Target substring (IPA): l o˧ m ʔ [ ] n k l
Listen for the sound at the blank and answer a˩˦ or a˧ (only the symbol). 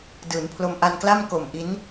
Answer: a˧